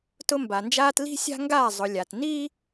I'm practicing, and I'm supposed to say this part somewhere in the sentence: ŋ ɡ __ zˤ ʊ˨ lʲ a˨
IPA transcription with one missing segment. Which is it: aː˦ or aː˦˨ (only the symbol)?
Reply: aː˦˨